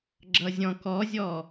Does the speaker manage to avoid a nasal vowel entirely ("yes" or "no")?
no